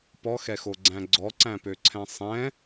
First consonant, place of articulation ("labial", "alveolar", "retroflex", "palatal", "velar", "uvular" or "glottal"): labial